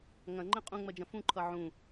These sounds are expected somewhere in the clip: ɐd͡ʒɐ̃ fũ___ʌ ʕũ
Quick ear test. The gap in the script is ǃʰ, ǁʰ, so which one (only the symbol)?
ǃʰ